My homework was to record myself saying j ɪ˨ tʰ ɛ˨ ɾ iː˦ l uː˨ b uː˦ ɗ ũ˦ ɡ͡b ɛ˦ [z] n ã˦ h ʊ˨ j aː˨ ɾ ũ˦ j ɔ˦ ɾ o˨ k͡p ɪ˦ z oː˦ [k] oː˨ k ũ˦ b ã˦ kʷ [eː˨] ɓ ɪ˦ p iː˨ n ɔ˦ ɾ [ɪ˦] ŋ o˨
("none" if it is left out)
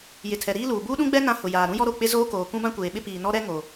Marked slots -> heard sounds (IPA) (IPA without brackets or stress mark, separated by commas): none, k, eː˨, ɛ˦